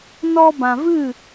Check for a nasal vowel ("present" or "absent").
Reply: present